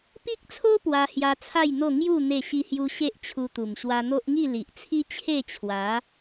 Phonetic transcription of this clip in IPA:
p i˦ k̚ t͡sʰ o˦ p w a˧ h j a˧ t͡sʰ a˥˧ j n̪ o˥˧ ŋ j u˥˧ n̪ e˥˧ ɕ i˦ h j u˦ ɕ e˦ ʔ t͡ɕʰ u˧ t̪ u˨˩ m ɕ w a˧ n̪ o˦ ʔ ŋ i˥˧ l i˨ ʔ t͡sʰ i˦ t͡ɕʰ e˥˧ t͡ɕʰ w a˨˦

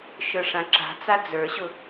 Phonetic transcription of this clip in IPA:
ʃ ə˞ ʂ ã ǁ a̤ t͡s a d͡z ə˞ ɕ ʊ

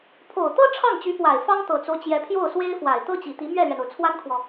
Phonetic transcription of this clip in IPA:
pʰ o˨˩ ʊ̯ t̪ ɤ˥ ʈ͡ʂʰ ɑ˥˩ ŋ t͡ɕ y˧˥ p w a˨˩ ɪ̯ f ɑ˥ ŋ t̪ ɤ˨˩ t͡s o˦ ʊ̯ t͡ɕ j ɛ˧˥ pʰ j o˥˩ ʊ̯ s w e˥ ɪ̯ f w a˨˩ ɪ̯ t̪ ɤ˥ t͡ɕ i˨˩ t̪ i˧˥ m ɥ ɛ˥˩ l ɥ ɛ˩ n o˩ ʊ̯ t͡sʰ w a˥ n kʰ w ɔ˨

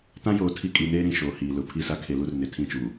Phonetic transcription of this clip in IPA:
t ã˦ j oː˨ tʰ i˦ kʼ i˨˦ n eː˦ ɾ ĩ˨ ʃ oː˨ h iː˨ l ʊ˨ pʰ i˦˨ s a˦ kʰ e˨ l u˦ r n ɪ˨ tʰ ĩ˦˨ t͡ʃ uː˨

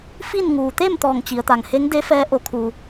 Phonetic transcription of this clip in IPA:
f i˥˨ n ŋ uː˩ t̪ e˥˨ m t̪ ɔː˧˩ ŋ t͡ɕ i˩˧ ə̯ t̪ a˩ ŋ h e˧˥ ŋ d e˧˥ f ɛː˧˥ ʔ o˧˥ kʰ u˧

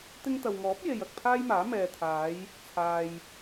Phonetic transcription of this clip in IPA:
t̪ ɪ˧ ŋ t̪ ɐ˨ w ŋ ɔː˨˥ p̚ j e˨ j ɐ˨ k̚ pʰ aː˥ j m aː˨˥ m ɛː˨ t̪ʰ aː˨˧ j | t͡sʰ aː˨ j

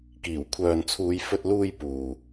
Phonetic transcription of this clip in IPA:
k iː˨˩ w kʷʰ œː˨ n t͡sʰ uː˨˧ j f ɵ˧ t̚ l uː˧ j p uː˨

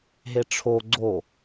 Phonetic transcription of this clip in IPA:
ɦ e ʈ͡ʂʰ o ɡ͡ǀ o

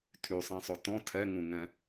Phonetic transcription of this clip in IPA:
tʰ y sˤ ɛ̃ sˤ o t ɔ̃ tʰ ɛ ŋ ũ ŋ ɛ̃

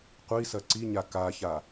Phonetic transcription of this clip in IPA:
qʷ i s ɐ ǀ i ɲ a k a ç a

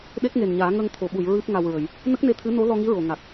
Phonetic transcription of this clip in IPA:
ɗ e˦˥ k̚ ŋ e˨˩ n ɲ aː˨˩˦ ŋ ə˧ ŋ t̪ʰ o˨˩˨ ɓ u˨˩˨ j ɹ ɨ˦˥ p̚ ŋ a˧ w ɹ ə˨˩˦ j | n ə˦˥ k̚ n e˧ t̪ʰ ɨ˧˥ n o˧˥ l ɔ˧ ŋ i˧˥ ɹ o˨˩˨ ŋ a˨˩ k̚

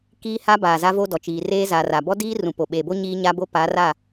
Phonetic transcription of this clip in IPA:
k iː˦ h a˦ b aː˨ z a˦ v o˦ d ɔ˨ t͡ʃ iː˨ r eː˦ z aː˨ r a˨ b ɔ˦ d iː˦ r ũ˨ p o˨ ɓ eː˨ b o˦ ɲ iː˦ ɲ a˦ b o˦ p a˨˦ r a˦˨

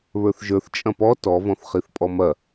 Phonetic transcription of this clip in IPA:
β ə˞ θ ʒ ə˞ θ t͡ʃʼ ɐ̃ p ɔ t ɔ v ɔ̃ θ χ i θ pʼ ɔ m ɐ

